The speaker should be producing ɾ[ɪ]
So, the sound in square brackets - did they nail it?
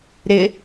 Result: yes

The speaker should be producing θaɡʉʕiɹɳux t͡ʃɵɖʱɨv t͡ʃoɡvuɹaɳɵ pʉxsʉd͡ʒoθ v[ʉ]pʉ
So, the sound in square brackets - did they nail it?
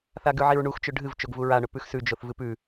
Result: no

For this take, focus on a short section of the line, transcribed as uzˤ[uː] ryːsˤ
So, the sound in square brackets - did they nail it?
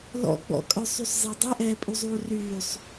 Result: yes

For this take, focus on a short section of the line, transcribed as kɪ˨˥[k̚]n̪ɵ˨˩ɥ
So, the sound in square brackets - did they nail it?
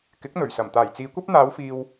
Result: yes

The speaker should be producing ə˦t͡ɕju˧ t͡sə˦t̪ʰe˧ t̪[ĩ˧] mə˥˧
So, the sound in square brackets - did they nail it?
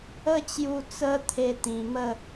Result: yes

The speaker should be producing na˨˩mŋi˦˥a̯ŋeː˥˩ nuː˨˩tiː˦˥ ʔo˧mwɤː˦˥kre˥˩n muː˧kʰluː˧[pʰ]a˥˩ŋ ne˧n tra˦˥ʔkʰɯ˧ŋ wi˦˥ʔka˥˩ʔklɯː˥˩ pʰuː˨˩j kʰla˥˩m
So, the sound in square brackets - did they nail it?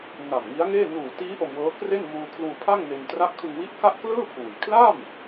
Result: yes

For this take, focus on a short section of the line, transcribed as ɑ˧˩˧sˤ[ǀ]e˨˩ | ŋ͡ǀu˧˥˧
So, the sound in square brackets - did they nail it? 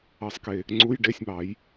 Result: no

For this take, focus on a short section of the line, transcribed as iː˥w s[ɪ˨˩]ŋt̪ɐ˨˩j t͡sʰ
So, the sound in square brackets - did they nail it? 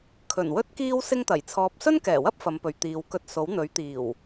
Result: no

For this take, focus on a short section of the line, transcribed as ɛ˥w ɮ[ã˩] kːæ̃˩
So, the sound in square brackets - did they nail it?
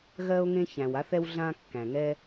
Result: no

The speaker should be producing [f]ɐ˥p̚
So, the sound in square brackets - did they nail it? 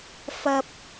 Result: yes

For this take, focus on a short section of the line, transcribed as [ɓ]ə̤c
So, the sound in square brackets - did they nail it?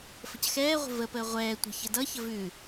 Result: no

